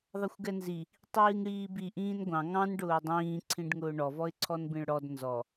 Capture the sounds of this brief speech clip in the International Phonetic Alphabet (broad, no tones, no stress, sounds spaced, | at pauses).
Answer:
ðˤ ʌ xʷ ɡ ɛ n z i | tˤ iː ŋ ɽ iː b i ʔ ĩː n ɡʷ ɑ̃ ŋ ɑ̃ n ɖ ʊː dˤ ĩː ǀʰ ĩ ɖ ŋ ʊː ɳ ɔ v ɔ ɪ̯ ǀʰ ɔ n b ĩ ɭ ɽ ɔ d n z ɔ